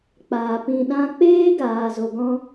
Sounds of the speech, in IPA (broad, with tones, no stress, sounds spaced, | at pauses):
k͡p aː˨ p ĩ˨ ɗ ã˧ k͡p eː˦ ɡ aː˨ z o˨ ɡ ɔ̃˦